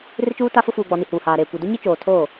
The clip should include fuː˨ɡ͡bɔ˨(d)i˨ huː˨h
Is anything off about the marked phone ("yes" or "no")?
yes